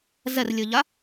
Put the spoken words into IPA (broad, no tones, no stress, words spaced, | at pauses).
zɛrlʲɨʎa